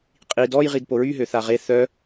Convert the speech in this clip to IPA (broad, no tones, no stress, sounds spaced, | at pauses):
qʼ i d ɔ j ʁ i d p o ɹ y ɦ ø θ a ʁ e θ œ